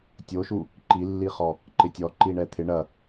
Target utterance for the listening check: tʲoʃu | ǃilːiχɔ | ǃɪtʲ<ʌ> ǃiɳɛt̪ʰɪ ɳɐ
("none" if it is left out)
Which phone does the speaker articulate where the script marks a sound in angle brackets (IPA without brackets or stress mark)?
ɔ